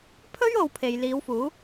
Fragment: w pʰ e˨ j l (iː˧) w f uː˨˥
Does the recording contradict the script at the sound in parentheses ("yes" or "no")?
yes